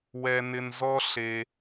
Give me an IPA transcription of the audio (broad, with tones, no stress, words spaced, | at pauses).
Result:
wɛ˨nɪ˨nzɔ˦ ɬe˨